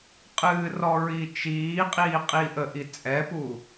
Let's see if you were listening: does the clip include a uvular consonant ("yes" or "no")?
yes